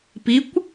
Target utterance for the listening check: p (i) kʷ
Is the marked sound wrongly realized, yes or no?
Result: no